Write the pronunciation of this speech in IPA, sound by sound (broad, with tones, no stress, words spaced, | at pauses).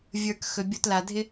vʲə˞˧k xɵ˨bʲo˧tla˨dʱɪ˦